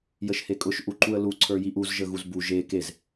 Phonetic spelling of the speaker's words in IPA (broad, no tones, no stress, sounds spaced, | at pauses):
j ə ʃ h e kʼ ʊ ʃ ʔ u ǃ u ə̯ l u ǀʰ ə˞ j i ʔ u z ʒ ə ɣ u z b u ʒ e k e z